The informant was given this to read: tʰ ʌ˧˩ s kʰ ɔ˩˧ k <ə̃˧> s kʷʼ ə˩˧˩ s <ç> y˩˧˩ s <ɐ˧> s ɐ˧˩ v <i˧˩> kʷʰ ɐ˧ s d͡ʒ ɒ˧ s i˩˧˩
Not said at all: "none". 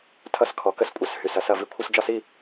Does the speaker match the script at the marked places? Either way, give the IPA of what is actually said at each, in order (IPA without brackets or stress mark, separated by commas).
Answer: ə˧, h, ɐ˧, i˧